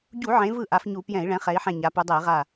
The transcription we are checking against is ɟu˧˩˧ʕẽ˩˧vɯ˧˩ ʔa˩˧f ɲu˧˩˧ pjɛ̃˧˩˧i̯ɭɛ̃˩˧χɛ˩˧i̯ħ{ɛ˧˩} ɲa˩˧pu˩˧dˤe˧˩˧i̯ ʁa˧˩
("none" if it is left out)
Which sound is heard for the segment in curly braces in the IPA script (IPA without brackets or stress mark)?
ɛ̃˧˩